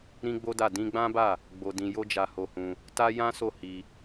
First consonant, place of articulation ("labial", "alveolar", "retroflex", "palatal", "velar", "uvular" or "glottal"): alveolar